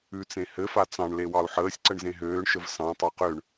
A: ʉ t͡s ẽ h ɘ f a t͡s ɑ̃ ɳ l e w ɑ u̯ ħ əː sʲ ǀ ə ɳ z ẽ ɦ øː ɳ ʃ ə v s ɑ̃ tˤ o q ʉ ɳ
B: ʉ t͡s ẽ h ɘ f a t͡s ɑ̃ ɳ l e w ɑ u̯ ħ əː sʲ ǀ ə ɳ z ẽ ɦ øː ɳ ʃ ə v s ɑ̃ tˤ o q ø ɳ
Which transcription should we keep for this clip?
B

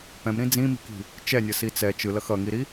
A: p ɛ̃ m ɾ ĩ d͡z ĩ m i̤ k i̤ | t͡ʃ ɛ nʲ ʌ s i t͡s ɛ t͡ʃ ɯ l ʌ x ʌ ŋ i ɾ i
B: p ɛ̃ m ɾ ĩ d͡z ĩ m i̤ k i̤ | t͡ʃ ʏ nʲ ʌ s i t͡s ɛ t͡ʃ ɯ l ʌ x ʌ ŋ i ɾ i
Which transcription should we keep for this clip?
A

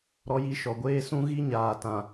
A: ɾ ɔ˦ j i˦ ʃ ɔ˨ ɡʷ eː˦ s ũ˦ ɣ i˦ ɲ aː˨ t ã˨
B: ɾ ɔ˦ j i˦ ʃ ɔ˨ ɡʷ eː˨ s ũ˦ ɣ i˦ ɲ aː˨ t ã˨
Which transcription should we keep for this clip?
A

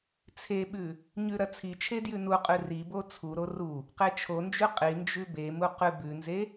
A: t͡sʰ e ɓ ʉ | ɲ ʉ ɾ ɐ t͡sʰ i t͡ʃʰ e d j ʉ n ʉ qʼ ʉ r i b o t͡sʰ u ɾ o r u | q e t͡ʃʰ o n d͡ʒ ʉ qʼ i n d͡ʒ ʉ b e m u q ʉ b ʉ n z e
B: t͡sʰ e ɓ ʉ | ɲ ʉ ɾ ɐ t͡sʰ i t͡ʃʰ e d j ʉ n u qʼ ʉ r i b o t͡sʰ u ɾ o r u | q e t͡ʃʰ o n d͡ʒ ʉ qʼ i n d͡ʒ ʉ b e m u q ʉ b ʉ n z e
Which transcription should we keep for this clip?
B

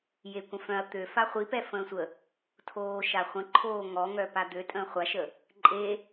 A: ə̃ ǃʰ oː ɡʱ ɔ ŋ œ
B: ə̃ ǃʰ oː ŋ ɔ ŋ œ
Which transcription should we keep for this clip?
B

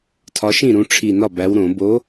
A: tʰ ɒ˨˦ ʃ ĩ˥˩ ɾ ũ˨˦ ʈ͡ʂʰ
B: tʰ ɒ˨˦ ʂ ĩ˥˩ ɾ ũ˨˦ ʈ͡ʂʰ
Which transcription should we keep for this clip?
A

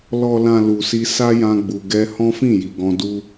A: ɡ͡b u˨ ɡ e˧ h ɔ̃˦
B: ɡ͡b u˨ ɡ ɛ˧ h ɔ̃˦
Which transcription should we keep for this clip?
B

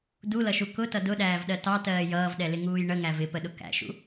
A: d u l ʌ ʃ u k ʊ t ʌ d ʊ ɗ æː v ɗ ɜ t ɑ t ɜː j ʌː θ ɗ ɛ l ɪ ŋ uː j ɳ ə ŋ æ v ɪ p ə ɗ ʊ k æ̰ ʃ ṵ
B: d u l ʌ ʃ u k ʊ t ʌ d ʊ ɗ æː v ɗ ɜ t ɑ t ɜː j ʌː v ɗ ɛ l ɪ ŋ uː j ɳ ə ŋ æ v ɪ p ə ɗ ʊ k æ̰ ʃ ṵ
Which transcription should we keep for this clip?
B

